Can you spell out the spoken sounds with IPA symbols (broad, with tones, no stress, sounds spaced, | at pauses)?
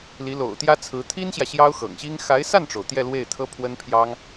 l i˧˥ l o̰˨˩ ʊ̯ t̪ j ä˥ t͡sʰ ɹ̩˧˥ t̪ʰ i˥ n ɕ j ä˨ ɕ j ɑ˥ ʊ̯ x ɤ̰˨˩ ŋ ɕ i˥ ŋ x a˧˥ ɪ̯ s a˥˩ n ʈ͡ʂ o˩ ʊ̯ t̪ j ɛ˥˧ l w e˥˩ ɪ̯ t̪ʰ ɤ˥ pʰ w ə˥ n pʰ j ɑ˥ ŋ